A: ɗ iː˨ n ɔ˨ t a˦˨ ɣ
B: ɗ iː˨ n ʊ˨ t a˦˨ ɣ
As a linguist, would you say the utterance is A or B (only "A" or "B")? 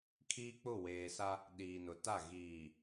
B